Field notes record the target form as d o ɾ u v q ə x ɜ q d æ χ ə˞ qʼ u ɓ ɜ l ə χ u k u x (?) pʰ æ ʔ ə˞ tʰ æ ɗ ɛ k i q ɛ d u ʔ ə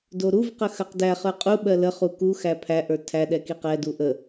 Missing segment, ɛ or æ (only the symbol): æ